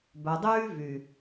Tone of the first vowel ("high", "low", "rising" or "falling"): low